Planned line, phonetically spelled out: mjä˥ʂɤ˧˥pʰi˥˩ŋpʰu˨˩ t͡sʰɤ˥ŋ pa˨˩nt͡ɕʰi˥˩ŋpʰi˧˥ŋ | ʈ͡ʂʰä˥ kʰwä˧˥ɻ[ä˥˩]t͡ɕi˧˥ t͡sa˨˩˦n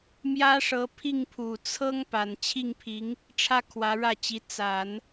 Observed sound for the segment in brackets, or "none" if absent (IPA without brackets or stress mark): ä˥˩